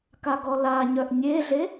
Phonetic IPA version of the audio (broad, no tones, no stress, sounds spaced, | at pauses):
k a ɡ ɔ l a ɲ œ ʔ nʲ e ɮ e